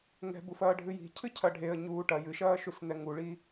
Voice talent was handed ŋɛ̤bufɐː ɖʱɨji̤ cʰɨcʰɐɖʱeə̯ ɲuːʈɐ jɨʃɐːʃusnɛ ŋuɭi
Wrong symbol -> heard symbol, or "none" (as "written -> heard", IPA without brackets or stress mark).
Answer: none